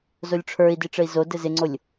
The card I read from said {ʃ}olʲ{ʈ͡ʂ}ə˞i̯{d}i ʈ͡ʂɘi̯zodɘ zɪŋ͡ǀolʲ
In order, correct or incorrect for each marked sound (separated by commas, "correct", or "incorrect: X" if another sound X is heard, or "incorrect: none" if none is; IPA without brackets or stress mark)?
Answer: incorrect: z, incorrect: ʈ͡ʂʰ, correct